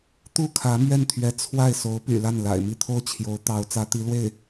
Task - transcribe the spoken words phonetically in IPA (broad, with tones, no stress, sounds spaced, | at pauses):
t̪ u˥˩ kʰ ä˧˥ m ɥ ɛ˥˩ n t̪ʰ ɥ ɛ˧˥ t͡sʰ w a˥˩ ɪ̯ s o˧˥ ʊ̯ p y̰˨˩ l a˥˩ n l a̰˨˩ ɪ̯ m i˥˧ t̪ʰ o˥˩ ʊ̯ t͡ɕʰ j o˧˥ ʊ̯ t̪ ɑ˧˥ ʊ̯ t͡s ä˧˥ t̪ i˧˥ l w e˥˩ ɪ̯